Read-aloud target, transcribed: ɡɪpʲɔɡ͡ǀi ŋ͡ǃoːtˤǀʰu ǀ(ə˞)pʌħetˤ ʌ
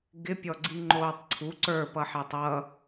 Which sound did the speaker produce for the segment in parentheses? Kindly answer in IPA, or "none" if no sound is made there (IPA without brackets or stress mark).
ə˞